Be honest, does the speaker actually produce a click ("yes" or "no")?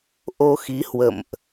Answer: no